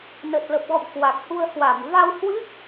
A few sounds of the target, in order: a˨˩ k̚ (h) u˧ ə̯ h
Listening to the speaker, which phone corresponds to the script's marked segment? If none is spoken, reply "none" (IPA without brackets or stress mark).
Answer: h